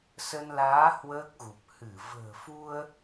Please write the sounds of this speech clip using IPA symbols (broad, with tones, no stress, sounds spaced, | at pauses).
s ə˧ n l aː˨˦ h w əː˦˥ k̚ ɣ u˨˩ p̚ h ɨ˧˩ v ə̤ː˨˩ f u˧ ə̯